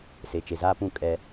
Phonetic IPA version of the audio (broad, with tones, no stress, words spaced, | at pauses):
se˨t͡ʃe˨zaː˦pũ˦˨ kʼɛ˦